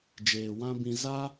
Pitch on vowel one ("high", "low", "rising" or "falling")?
low